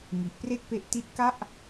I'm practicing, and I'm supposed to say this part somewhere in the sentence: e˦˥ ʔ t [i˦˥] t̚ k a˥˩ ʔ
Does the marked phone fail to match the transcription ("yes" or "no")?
no